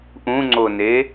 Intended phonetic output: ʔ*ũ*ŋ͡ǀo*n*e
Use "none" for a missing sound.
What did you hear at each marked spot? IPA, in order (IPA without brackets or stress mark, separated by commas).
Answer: ũ, n